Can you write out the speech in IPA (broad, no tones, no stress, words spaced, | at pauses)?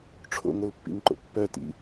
ʈ͡ʂʰo̰ŋolpːḭŋǃo̰ pːœtḭ